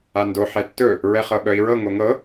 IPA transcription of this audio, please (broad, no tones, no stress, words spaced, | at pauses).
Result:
ando ħɛtːɵ | ɹɛχɤɓœi̯ɹɤ ŋoŋɤ